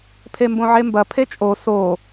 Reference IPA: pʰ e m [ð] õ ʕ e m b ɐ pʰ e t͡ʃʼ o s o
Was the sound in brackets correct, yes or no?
no